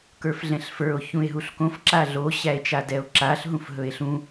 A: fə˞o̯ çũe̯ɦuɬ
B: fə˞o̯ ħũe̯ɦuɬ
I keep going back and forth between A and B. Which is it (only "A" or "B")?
A